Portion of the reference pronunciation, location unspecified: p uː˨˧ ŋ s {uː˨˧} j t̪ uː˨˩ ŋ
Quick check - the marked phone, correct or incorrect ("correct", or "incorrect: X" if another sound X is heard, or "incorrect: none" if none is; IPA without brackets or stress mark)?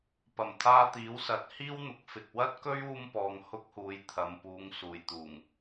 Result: incorrect: uː˨˩